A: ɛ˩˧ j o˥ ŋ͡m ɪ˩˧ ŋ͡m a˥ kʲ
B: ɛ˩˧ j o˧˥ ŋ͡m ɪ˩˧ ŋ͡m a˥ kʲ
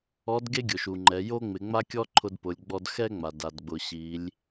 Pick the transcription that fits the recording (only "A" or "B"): A